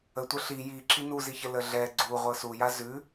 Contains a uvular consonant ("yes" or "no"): yes